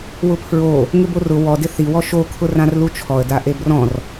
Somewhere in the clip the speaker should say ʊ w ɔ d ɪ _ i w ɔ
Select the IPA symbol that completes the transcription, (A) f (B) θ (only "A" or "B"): B